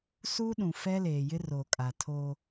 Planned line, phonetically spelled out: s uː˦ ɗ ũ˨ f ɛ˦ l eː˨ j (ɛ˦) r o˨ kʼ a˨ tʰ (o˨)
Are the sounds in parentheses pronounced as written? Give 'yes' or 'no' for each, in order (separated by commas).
no, no